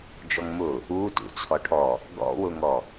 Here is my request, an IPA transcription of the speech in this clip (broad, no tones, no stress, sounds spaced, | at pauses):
d͡ʒ ɔ ŋ m ʊ | u t ṵ t͡sʰ ɔ ʈʰ ɔ | ɡ ɔ̰ w ʊ ŋ ɔ